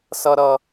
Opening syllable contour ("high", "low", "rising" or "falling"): high